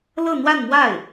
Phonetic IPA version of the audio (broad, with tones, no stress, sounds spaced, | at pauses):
l ɤ˥˧ n̪ w a˥˧ n m w a˥˩ ɪ̯